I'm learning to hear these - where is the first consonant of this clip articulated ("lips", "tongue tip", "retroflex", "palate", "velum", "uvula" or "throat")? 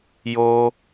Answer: palate